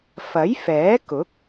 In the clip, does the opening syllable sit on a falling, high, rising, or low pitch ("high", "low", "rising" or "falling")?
rising